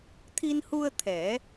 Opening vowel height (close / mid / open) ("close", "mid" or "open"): close